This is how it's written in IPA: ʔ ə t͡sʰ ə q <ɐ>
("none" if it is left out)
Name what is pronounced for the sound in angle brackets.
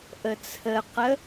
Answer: ə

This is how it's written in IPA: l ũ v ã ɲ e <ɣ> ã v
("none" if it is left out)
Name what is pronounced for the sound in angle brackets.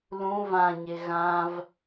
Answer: ɣ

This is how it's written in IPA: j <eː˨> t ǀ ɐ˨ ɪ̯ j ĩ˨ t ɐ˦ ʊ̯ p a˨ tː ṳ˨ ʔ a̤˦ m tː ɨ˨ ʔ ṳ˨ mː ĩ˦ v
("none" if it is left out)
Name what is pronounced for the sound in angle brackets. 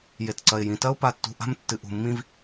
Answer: e˨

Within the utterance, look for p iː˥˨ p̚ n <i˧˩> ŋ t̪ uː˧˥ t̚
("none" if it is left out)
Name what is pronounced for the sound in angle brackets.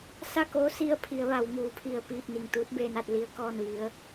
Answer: i˧˩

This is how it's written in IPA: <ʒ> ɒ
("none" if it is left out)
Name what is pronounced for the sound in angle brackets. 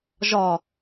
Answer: ʒ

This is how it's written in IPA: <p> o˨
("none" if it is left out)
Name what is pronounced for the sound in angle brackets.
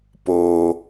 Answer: p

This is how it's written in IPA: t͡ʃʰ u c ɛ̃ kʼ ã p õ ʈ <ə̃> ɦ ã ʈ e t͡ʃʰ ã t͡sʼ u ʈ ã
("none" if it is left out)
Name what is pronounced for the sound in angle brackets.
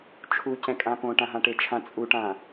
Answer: ã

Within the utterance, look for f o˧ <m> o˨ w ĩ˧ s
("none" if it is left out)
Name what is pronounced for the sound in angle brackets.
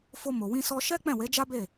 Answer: m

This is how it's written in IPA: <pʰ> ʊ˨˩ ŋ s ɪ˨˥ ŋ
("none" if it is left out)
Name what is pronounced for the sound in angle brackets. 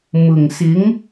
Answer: m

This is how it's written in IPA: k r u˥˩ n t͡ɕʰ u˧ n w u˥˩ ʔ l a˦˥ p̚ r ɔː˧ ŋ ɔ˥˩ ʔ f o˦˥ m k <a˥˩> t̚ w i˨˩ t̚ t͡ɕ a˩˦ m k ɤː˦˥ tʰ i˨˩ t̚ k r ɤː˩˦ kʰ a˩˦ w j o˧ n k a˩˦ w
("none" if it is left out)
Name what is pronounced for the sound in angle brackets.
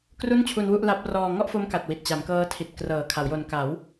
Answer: a˨˩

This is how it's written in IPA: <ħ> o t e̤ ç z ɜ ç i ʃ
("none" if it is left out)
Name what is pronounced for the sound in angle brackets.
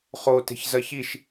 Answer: χ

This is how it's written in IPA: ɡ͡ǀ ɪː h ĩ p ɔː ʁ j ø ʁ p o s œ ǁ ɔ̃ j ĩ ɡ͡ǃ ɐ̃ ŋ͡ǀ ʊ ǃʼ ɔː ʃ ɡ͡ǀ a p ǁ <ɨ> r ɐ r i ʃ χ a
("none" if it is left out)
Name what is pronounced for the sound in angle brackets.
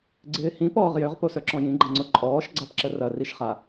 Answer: ə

